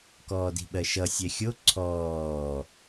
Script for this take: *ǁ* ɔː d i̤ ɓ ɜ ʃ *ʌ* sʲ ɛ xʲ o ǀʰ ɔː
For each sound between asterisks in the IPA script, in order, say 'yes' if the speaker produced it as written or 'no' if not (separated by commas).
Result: no, yes